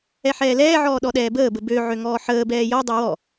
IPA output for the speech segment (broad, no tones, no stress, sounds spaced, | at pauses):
ɛ ħ ɛː l ɛː ʕ ɔː ɗ ɔ ɗ ɛː b əː b ə b ø ʕ ø ŋ ɔː ħ əː b ɛː j ɔ dˤ ɛ w ɔ